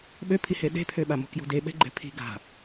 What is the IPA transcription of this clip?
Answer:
ɓ ø pʰ i h e ɗ e̤ pʰ ø ɓ a m o̤ k j o̤ d e ɓ ɛ̤ ɡ͡ǃ ɛ̤ pʰ i̤ ɡ a̤

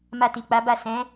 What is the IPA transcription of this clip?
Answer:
m a˧ t i˨ k͡p a˨˦ b a˦˨ s ɛ̃˨˦

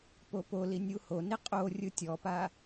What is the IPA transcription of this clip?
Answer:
p o p o l i nʲ u h o n i qʼ o rʲ ɯ tʲ ɔ p a

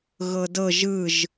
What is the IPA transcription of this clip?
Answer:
ɣ ɤ d ɤ ʒ ɯ ʒ

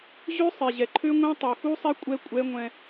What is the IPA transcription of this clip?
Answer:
ʑ ø˦ sˤ e˨ ʑ ɛ˨ ǃʰ ø˦ ŋʷ ẽ˦ tˤ u˨ x u˦ sˤ e˦ kʷʼ ɛ˦ kʷʼ ɛ˦ ŋʷ ɛ̃˦

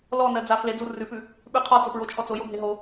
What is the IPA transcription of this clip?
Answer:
l ɔ n ɜ d͡z a f l e d͡z u r ʉ p ʉ | ɓ ʉ qʰ ɔ t͡s o p ɹ o t͡ʃʰ ɔ t͡s o j o bʱ e ɦ o

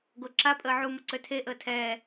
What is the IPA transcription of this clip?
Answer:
ɡ o ǁ a pʼ əː ʕ u m ə ǀ ø tʰ e ʔ əː tʰ ɛː

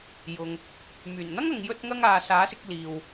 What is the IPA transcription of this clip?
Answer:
j ʊ˨ ŋ | m yː˨˩ n n̪ ɐ˥ ŋ ɐ˨ ŋ j ɵ˧ t̚ ŋ ɐ˧ ŋ aː˨ s aː˨˥ s ɪ˧ k̚ l iː˧ w

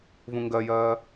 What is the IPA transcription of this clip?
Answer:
v ũ ŋ ɡ ɜ j ɜː

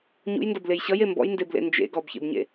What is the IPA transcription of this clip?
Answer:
ɲ ṵ j n d ʌ b l e j ɕ ʌ j e m b ɔ̰ j n d e b l ḛ n d͡ʒ ḛ ɡ ɔ b ç ḛ b ɲ ḛ

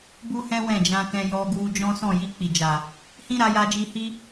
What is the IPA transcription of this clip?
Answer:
b u˦ h ɛ̃˦ w ɛ̃˦˨ d͡ʒ ã˧ k ɛ̃˧ j ɔ˧ ɡ u˧ d͡ʒ ɔ̃˦ s ɔ̃˦˨ j i˧ k͡p i˨ d͡ʒ a˨ | h ĩ˦ ɾ a˧ j a˧ d͡ʒ i˧ h i˦

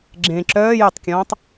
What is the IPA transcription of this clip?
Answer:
ɡ͡ǁ ẽ ǁ œː j œ tˤ kʲ ɔ̃ː tˤ

